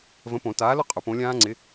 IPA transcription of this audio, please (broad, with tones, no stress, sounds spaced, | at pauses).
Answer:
v ə̃˨˥ p õ˨˩˦ t aː˨˥ l ʊ˦˥ qʼ ʊ˨˩˦ p õ˨˥ lʲ ãː˦˥ ŋ͡ǀ ɪ˨˥